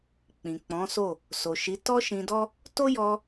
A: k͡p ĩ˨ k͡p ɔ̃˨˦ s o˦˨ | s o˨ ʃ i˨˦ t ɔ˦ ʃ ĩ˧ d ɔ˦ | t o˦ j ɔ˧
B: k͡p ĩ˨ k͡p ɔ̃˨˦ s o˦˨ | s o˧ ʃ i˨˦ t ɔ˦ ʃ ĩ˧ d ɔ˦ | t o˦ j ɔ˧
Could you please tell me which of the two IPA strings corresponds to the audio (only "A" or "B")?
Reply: A